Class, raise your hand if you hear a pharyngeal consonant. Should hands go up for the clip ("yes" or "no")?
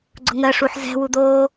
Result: yes